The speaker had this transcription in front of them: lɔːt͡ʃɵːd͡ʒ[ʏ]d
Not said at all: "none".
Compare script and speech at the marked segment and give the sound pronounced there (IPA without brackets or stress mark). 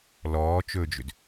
ʏ